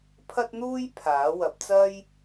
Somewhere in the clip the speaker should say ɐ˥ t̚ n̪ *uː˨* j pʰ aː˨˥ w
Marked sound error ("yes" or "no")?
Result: yes